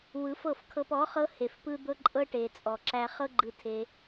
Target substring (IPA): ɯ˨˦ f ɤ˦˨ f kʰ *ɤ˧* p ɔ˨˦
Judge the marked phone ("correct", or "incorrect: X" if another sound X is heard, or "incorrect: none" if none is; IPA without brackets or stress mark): correct